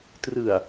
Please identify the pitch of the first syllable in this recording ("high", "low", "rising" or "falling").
low